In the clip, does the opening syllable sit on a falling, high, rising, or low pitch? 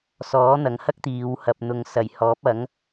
rising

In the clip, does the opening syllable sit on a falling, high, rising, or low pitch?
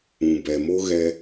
low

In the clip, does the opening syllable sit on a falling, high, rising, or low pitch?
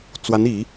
rising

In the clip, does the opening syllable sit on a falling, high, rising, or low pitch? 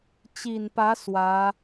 low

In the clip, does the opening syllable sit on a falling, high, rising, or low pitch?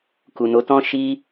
low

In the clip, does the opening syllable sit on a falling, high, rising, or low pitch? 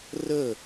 falling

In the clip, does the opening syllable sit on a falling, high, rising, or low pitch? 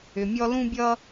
low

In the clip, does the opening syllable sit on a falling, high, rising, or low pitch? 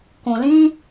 low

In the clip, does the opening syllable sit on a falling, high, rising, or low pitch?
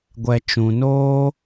low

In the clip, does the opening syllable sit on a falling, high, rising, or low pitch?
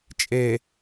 low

